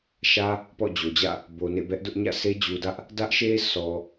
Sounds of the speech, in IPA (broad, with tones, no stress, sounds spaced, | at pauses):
ʃ ä˦ | p ɔ̰˦˨ d͡ʑ o˨ d͡ʑ ä̰˦˨ | b o˨ n ḛ˦˨ b ɛ˦ ʔ d ʊ˦ ʔ ɲ ä̰˦˨ s e˦ d͡ʑ u˨ d ä˦ ʔ | d ä˦ ʔ ʃ e˦ s ɔ˨